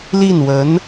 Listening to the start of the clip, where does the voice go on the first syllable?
falling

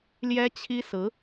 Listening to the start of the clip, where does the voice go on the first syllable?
high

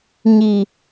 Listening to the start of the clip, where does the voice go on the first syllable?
low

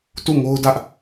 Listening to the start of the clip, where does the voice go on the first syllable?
falling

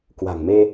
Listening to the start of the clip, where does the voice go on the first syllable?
low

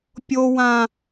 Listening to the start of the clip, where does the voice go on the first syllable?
high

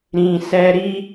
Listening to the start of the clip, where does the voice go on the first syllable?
low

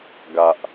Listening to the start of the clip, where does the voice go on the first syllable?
low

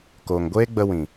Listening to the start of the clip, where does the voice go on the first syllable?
low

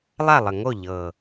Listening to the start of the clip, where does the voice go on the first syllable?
falling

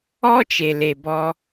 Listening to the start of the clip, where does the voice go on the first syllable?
high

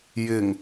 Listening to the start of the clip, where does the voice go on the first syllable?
low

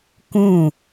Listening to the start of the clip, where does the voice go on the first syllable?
falling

